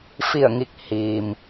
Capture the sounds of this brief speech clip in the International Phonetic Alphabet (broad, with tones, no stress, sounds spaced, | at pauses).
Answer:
f i˧˩ ə̯ ŋ i˧˩ k̚ h iː˩ m